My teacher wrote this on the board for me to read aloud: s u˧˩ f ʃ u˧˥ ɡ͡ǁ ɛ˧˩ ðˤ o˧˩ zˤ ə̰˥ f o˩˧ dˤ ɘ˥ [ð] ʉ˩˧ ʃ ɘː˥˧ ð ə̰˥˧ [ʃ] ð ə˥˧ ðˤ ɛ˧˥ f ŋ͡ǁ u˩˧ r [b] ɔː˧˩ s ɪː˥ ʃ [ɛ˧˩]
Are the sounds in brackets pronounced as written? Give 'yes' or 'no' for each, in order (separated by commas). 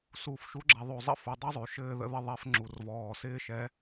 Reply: no, no, no, no